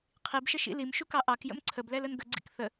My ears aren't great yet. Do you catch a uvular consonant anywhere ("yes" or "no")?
yes